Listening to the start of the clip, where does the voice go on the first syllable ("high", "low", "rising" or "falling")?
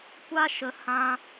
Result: high